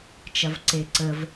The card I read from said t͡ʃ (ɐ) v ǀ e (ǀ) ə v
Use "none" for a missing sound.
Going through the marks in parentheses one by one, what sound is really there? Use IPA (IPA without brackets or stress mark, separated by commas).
ɐ, ǀ